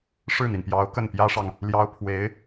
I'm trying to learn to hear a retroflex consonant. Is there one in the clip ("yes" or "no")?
yes